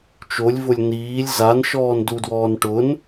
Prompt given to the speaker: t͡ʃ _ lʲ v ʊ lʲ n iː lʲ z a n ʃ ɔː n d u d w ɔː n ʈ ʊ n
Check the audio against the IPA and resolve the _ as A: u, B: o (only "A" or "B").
B